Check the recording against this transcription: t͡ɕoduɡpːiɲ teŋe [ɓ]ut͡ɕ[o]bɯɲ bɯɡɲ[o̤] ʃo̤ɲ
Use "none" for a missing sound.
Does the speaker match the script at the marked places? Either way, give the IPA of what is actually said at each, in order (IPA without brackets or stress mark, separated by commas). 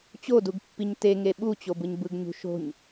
ɓ, o, ṳ